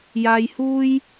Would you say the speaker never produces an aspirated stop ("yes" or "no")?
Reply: yes